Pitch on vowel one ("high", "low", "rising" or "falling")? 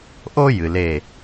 high